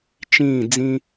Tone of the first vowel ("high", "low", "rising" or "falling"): falling